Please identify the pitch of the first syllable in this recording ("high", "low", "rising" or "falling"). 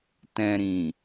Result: low